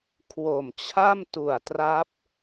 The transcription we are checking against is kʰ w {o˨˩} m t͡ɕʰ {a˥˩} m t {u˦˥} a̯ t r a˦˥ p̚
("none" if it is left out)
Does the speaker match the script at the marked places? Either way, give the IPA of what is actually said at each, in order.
o˨˩, a˥˩, u˨˩

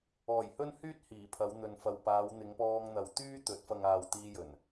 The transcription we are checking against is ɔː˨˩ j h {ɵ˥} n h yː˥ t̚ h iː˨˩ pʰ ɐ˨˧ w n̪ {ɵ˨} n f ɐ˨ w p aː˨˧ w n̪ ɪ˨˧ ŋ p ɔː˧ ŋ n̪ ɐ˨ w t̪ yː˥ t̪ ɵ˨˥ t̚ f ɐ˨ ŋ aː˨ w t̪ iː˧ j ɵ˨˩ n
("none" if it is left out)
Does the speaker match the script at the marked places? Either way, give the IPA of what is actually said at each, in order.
ɵ˥, ɵ˨

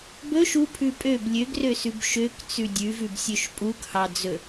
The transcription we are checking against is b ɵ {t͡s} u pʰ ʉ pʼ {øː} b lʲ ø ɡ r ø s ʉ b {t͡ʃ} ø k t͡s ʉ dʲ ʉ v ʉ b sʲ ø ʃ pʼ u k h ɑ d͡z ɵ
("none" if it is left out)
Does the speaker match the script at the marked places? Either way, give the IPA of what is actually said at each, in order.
ʃ, ø, ʃ

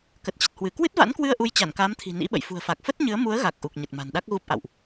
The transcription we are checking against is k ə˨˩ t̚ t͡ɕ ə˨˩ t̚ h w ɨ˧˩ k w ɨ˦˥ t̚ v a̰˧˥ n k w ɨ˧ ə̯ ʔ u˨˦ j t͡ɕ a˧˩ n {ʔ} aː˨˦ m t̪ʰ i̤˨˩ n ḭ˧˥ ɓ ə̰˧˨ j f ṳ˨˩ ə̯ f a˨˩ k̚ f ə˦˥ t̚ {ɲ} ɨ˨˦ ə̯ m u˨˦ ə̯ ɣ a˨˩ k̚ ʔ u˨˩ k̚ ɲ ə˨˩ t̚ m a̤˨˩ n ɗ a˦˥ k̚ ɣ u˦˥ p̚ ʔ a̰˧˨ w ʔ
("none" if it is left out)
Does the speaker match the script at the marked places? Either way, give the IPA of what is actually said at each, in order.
k, ɲ

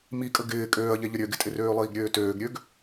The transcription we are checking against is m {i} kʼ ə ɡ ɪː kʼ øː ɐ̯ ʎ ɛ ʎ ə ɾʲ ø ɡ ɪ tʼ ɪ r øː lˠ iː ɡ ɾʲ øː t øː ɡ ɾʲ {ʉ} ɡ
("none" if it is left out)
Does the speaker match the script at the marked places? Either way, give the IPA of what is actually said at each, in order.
i, ø

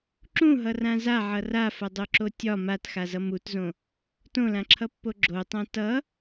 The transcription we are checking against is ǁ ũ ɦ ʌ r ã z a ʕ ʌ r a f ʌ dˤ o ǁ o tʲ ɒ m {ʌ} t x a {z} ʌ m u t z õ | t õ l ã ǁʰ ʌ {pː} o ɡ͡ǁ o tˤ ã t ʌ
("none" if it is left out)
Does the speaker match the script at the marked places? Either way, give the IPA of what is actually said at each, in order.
a, z, pː

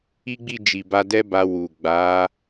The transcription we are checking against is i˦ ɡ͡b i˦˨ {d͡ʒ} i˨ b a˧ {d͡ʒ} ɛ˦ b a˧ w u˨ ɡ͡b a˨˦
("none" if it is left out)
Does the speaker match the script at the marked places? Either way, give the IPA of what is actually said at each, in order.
d͡ʒ, d

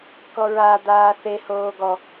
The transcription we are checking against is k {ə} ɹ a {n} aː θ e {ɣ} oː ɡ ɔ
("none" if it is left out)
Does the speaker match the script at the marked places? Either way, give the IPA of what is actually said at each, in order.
ɔ, d̪, h

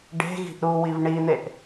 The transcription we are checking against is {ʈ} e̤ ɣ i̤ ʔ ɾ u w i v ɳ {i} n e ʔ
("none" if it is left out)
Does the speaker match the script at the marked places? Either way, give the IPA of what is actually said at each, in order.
ɖ, i

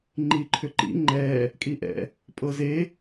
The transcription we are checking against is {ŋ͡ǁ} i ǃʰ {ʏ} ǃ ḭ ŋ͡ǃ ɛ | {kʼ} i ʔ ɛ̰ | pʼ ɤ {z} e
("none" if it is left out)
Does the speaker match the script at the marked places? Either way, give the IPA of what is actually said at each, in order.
ŋ͡ǃ, ʏ, kʼ, z

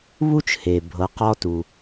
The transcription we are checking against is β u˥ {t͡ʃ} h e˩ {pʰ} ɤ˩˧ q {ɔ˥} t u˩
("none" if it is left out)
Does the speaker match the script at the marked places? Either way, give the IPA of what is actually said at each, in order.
t͡ʃ, bʱ, ɔ˥

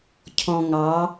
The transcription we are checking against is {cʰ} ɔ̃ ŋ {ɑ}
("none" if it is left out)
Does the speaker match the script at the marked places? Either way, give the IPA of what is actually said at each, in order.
cʰ, ɑ

